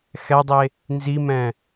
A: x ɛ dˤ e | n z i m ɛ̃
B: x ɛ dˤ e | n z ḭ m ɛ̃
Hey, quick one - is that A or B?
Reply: A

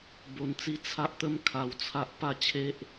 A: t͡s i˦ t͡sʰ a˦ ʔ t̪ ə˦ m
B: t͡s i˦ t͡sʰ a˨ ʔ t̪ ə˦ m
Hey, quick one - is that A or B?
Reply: A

